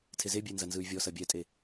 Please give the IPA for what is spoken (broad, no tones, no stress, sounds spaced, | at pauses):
tʰ e z e bʲ e n z ɐ n z ɯ y̯ vʲ ɔ s ɐ bʲ ɛ tʼ e